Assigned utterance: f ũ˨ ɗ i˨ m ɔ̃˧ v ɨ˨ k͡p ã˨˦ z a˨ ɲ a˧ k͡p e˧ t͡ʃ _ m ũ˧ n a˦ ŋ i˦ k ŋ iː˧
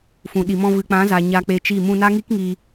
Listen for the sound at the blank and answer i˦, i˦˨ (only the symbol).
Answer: i˦˨